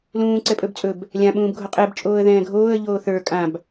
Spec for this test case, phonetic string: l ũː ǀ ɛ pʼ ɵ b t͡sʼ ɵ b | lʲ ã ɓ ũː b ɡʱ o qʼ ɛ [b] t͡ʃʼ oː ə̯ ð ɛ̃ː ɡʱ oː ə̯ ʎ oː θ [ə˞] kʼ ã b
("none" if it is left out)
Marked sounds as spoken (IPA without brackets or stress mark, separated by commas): b, ə˞